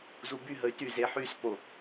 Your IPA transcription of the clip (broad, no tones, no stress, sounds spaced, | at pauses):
z u b y ɦ ə y̯ t y z e ħ y s p o